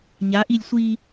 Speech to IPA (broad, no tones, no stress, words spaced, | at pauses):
ɲaʔilʲ sʷi